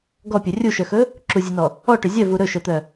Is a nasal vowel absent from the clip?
yes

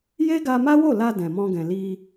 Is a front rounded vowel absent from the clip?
yes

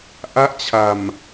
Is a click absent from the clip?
yes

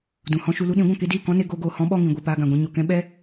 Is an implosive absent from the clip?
no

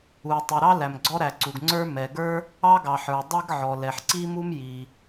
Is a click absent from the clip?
no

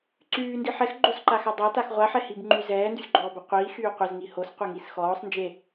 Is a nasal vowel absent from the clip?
yes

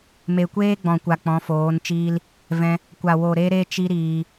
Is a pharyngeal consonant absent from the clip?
yes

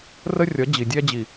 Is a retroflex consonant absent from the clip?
yes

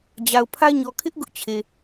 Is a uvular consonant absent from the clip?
yes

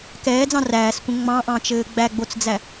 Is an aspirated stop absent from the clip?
yes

